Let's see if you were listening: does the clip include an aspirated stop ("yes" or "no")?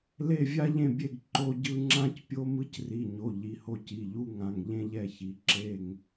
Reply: no